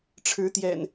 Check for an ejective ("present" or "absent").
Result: absent